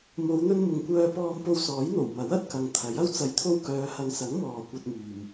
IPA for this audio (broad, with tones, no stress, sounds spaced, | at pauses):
m o˨˧ w n̪ ɵ˧ n m ʊ˨ ŋ kʷ œː˧ p ɔː˧ m p o˧ w s ɔː˨˥ j n̪ o˨˩ w m ɐ˨˥ w ɐ˧ t̚ k ɐ˨ ŋ t̪ʰ ɐ˨˥ j ɐ˥ w t͡s ɐ˧ j t̪ʰ o˥ w k œː˨˧ h ɐ˨˧ ŋ s ɐ˨˥ ŋ m ɔː˨ kʷ ɐ˧ t̚ m yː˨ m